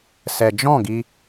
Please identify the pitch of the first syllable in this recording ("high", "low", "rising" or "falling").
low